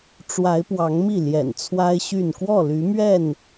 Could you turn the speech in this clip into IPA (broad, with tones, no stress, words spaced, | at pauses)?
ʈ͡ʂwa˨˦ɪ̯pwɑ˨˦ŋmi˥˨ ljɛ̰˨˩nt͡sʰwa˦ɪ̯ɕy˥˨n kwɔ˥˨ly˨˦mɥɛ˥˨n